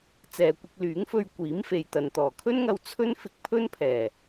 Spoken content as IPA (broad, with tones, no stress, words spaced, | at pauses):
t͡sɛː˨kʷɪ˧k̚lyː˨˥ŋfɵ˧ɥ kʷiː˨˥mfe˨jt̪ɐ˨n t̪ɔː˨˩kʰɵ˥nŋɐ˧w t͡sʰɵ˥n fɪ˧k̚pʰɵ˥npʰɛː˨˩